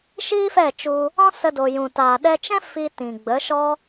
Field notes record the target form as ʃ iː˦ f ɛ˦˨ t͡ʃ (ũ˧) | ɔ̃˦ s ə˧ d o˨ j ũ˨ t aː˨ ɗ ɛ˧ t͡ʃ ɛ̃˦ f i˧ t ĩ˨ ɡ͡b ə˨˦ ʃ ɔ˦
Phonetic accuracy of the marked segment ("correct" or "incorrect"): incorrect